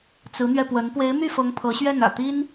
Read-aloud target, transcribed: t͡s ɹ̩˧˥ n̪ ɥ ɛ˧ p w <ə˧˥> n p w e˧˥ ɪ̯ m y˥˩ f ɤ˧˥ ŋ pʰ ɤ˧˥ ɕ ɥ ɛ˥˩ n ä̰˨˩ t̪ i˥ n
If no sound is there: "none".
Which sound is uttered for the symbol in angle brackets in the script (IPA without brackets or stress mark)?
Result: ə˧˥